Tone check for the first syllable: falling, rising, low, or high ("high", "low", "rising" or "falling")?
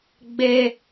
high